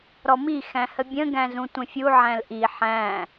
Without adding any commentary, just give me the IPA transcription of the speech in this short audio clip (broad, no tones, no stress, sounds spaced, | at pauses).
ɾ ɔ m i x æ̃ h ə bʲ ə̃ ɡ æ̃ z ũ tʷ ə̃ fʲ u ʕ æ̃ l ʔ i ħ æ̃